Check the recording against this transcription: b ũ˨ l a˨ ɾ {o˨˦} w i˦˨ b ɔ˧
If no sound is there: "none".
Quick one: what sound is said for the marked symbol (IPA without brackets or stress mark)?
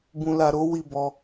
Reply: o˨˦